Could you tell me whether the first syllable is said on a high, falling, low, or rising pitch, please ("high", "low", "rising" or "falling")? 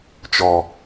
low